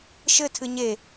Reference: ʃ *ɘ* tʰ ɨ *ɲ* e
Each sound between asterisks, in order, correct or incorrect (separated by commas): correct, correct